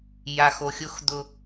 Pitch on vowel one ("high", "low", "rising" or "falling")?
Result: low